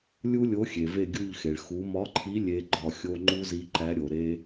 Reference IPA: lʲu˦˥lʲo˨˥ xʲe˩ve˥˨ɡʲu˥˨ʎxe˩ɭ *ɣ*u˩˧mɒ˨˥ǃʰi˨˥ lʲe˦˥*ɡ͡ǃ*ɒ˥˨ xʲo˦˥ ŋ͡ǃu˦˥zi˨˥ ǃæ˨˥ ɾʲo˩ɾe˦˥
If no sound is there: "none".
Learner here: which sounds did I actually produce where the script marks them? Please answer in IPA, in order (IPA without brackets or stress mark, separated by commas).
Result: x, ɡ͡ǃ